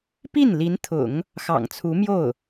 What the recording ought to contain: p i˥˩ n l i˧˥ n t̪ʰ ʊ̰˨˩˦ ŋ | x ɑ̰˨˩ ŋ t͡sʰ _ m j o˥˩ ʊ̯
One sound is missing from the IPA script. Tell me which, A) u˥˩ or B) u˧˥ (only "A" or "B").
B